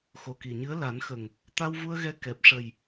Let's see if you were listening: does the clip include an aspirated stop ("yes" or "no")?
no